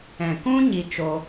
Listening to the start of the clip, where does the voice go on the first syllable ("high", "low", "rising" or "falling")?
low